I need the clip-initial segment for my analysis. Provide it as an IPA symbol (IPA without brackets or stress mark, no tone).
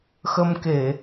x